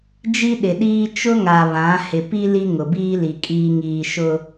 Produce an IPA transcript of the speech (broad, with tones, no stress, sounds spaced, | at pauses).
d͡ʒ i˦ ɗ ɪ˨ ɗ iː˦ t͡ʃ ʊ˦ ŋ a˨ β ã˨˦ h ɪ˨ p i˦ l i˦ ŋ ʊ˨ b iː˦ l i˨ kʼ iː˨ ŋ iː˨ ʃ ʊ˦